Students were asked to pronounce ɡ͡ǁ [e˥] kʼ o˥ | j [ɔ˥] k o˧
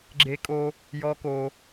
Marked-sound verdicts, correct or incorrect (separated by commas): correct, correct